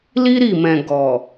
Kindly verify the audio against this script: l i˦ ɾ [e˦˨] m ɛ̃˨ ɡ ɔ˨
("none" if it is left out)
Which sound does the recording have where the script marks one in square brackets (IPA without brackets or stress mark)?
i˦˨